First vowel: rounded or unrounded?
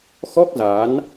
rounded